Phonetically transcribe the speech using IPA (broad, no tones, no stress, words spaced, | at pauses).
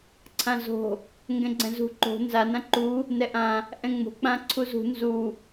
ǀʰãzo̤ | ŋɡɛ̃ɡ͡ǀɛ̃zṳ ǃo̤ nza nãǃu | nɛʔã | ʔɛ̃ŋ͡mo̤ k͡pãǀʰuzṳ nzu